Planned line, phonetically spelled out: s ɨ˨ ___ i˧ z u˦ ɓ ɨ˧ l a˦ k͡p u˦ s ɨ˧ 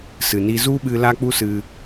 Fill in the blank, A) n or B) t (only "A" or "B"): A